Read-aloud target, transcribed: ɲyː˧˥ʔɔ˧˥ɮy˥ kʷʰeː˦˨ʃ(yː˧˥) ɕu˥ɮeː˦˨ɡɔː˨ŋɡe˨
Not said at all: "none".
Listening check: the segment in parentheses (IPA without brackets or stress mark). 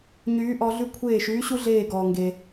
yː˧˥